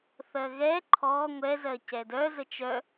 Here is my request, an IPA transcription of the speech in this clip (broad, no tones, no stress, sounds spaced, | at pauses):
θ ɜ ɣ ɛ ǃʰ ɔ ŋʷ ɛ z ɜ c ɛ d œ z ə t͡ʃ œ